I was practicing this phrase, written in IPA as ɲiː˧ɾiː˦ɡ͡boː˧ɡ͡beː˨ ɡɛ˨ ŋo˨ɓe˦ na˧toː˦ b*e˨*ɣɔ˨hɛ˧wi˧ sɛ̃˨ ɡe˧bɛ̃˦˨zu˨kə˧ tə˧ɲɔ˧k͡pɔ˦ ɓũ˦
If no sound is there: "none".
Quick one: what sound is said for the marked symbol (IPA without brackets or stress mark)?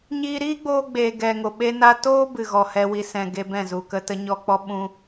ɨ˨